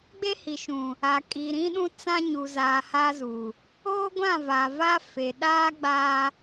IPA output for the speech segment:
ɡ͡b e˦ h i˨ ʃ ũ˨ | a˨ kʼ i˨ ɾ ĩ˦ ɗ ũ˦ t͡s ã˦ ɲ u˨ z aː˨ h a˦ z uː˨ | oː˦ ɡʷ ã˦˨ v a˨ v a˦ f e˨ ɗ aː˦ ɡ͡b aː˦

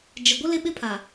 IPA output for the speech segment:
d͡ʒ ɪ˨ ɡʷ ɪ˦ l ɪ˦ ɓ ɪ˦ pʰ a˨

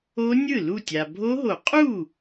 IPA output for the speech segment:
o˦˥ nʲ ɯ˥˩ l u˥˩ tʲ a˩ bʱ o˦˥ ɦ o˨˩˦ qʼ u˥˩

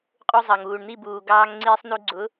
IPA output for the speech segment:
qʼ u˧ zˤ ɑ˨ ŋ uː˨ ɳ n̪ i˦˨ b uː˨ ɡ ɑː˧ ŋ ŋ͡ǀ iː˧ sˤ n u˧ ɡ͡ǀ ʊ˨˦

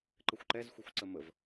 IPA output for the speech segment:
ǃ ə xʷ ǃ ɛ z xʷ ɛ xʷ ǀ ə m ə v

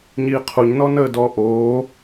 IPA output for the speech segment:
ɲ iː qʰ u ɲ n ɔ n əː d ɔ ʔ oː

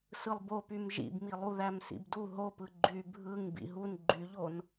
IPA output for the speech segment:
s ɯ lˠ b o p y m ʒ ḭ b m i lˠ u ð æ m s ḭ b d u ɦ o p ɯ ɡ͡ǃ y bʱ ɯ ŋ b ḭ ɦ u n ɡ͡ǃ y ʎ o n

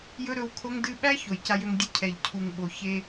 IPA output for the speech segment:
j ɵ˦ ɾ ɵ˧ w kʰ o˦ ŋ d ɨ˧ ɓ æ˦ ç o˨ j c a˧ j ø˧ ŋ dʲ ɨ˧ cʰ ɛ˨ ʎ cʰ u˨ ŋ ɓ o˨ ç e˧

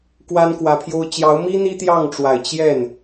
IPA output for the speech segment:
k w a˥ n k w ä˧˥ pʰ j o˥ ʊ̯ t͡ɕ j ɑ˧˥ ʊ̯ m i˥ n̪ i˥ t̪ j ɑ˥˩ ŋ ʈ͡ʂ w a˨˩ ɪ̯ t͡ɕ j ɛ˥˩ n

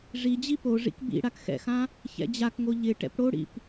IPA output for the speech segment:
ʐ i d͡ʑ i p o ʐ ḭ k b ḭ ɽ a k x ɛ̰ x ã | ç ɛ̰ d͡ʑ a k ŋ o ʎ ɪ ʈ ɛ̰ p ɽ o ɽ ḭ p

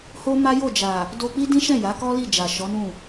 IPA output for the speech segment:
h o˦ m a˦ j o˦˨ d͡ʒ a˨ | d o˧ k͡p i˦ d ĩ˦ ʃ ɛ̃˦˨ j a˨˦ k ɔ˦ l i˦˨ d͡ʒ a˨ ʃ ɔ˨˦ n ũ˦˨

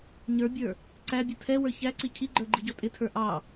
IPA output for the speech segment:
ɲ ə˞ bʲ ə˞ | ǀ æ bʲ ʊ tʰ ɛ w ə˞ ç æ ǀ i cʰ i ɡ͡ǃ ə˞ ɡ͡ǃ i ɟ ɔ tʼ ɪ tʰ ə˞ ʔ ɑ

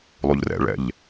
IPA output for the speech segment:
lˠ u ʎ r ɛ̰ ɭ ɛ̰ ʎ

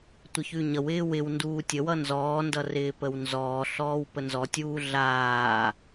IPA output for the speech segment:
tʷ ə ç ʉ ɲ ʌ w ɪː w ɪ w n d uː tʲ ə w ʌ n z ɔː n d ʌ r ɪː p ə w n z ɔː ɬ ɔː w p ə n z ɔ tʲ uː ɮ aː

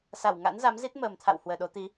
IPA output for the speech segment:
s a˧˩ w ŋ a̰˧˥ n z a˨˦ m z i˦˥ t̚ m əː˨˩ m t̪ʰ a̰˧˨ w h w əː˨˩ ɗ o˨˦ t̪ i˨˦

